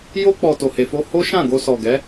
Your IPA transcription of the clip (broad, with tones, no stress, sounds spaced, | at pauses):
j o˧ k͡p ɔ˨ t o˨ h e˨ f o˧ h o˦ ʃ ã˦˨ ɡ o˧ s ɔ˨ ɡ ɛ˨˦